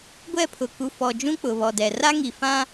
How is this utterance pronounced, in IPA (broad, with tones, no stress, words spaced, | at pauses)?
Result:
ɡʷɛ˦˨pʰʊ˨ku˨fɔ˨ d͡ʒũ˦k͡pʊ˨βɔ˨dɛ˨ ra˦ŋi˨fã˦